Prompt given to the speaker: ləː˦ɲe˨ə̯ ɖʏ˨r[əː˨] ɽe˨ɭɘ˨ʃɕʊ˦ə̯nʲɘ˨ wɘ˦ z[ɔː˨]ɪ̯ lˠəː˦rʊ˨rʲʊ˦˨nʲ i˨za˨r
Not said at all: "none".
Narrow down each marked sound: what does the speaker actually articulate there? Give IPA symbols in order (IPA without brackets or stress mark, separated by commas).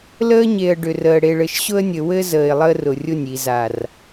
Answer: əː˨, əː˨